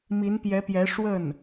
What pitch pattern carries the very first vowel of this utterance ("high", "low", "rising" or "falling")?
rising